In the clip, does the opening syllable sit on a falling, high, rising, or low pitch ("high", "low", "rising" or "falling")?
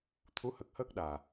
rising